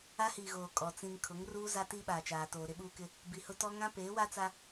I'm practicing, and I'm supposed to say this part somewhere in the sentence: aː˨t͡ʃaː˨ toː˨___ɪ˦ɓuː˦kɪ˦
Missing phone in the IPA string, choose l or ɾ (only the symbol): ɾ